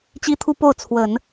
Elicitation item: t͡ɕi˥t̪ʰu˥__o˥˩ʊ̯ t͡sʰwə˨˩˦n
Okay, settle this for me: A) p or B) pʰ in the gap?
A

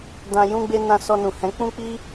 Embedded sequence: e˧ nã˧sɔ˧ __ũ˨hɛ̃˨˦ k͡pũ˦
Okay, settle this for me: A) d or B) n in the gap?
B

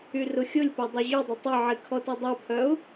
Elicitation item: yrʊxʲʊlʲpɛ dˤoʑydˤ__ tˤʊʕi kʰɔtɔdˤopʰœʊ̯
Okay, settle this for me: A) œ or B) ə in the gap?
B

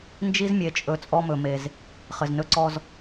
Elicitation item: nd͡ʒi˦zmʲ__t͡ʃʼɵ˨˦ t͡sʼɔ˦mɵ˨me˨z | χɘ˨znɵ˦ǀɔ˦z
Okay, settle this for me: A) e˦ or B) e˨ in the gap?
B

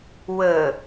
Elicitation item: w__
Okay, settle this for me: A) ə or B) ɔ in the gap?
A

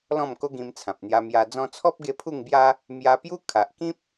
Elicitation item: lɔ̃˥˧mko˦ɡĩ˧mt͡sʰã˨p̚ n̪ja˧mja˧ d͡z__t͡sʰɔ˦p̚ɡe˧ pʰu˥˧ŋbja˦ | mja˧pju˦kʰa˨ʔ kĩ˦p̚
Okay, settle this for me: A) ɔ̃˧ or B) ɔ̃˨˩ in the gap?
A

